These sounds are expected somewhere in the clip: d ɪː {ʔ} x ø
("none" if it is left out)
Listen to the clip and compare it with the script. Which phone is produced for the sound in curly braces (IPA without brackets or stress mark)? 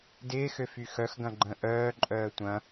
none